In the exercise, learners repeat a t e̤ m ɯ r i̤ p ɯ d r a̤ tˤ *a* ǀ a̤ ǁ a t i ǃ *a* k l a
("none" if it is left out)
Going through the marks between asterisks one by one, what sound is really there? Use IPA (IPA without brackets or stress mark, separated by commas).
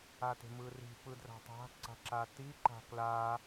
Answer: a̤, a̤